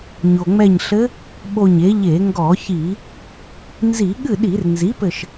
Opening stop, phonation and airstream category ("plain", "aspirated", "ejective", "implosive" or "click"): implosive